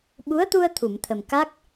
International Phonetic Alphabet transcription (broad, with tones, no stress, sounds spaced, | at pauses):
ɓ u˧˥ ə̯ t̪ u˧ ə̯ t̪ʰ u˨˩˨ m t̪ʰ ə˨˩ m k a˦˥ k̚